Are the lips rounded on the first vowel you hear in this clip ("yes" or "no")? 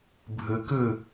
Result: no